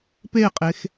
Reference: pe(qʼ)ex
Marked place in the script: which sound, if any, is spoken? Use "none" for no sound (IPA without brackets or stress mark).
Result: qʼ